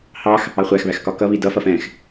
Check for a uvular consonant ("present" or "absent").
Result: present